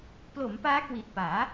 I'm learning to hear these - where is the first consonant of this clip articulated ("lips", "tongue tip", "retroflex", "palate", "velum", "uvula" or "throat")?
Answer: lips